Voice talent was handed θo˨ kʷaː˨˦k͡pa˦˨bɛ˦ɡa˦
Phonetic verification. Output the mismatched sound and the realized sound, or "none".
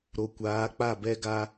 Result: θ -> ɾ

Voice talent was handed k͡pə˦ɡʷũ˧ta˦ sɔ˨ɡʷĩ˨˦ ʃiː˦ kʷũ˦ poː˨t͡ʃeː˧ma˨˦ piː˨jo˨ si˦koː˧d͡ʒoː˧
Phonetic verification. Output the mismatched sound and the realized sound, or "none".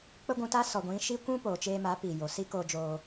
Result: none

